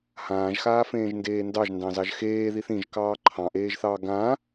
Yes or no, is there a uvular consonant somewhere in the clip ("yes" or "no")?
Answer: no